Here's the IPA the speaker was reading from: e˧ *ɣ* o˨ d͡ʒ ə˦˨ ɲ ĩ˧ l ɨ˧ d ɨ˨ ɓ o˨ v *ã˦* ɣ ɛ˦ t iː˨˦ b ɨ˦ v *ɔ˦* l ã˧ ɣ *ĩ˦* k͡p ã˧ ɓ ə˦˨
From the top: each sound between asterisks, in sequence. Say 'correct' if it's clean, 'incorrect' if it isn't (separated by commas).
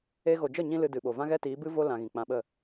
correct, correct, incorrect, incorrect